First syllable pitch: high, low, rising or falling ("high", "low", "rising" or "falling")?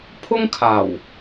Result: high